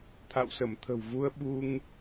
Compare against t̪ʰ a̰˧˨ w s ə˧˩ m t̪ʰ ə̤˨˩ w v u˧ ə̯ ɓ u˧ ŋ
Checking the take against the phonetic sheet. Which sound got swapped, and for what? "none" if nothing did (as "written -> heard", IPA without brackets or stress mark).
none